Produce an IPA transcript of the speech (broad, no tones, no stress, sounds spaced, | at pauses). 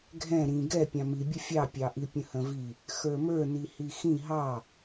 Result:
ɡʱ ɛ̃ ɾ ĩ ɡ ɛ pʲ ɑ̃ m i bʲ ə fʲ ɑ pʲ ɑ ʔ i pʲ ə̃ h ə̃ v i | x ə˞ m ə˞ n i h i x ĩ ɦ ɑ